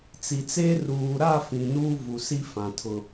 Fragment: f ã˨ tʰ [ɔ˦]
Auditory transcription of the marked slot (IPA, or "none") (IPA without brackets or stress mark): ʊ˦